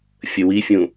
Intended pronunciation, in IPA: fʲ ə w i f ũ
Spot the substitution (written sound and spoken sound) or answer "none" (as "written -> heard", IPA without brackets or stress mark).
f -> fʲ